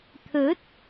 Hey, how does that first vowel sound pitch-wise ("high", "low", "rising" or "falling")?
rising